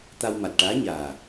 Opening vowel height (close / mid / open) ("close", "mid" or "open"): open